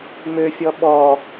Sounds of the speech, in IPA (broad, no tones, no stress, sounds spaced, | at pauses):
m ø fʲ ɔ ɓ ɔ